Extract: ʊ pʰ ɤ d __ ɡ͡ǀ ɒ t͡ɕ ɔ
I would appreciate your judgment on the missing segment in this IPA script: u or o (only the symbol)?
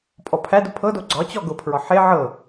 o